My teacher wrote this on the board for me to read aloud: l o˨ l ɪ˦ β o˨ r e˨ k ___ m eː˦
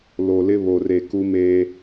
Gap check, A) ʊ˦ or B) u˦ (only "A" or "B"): B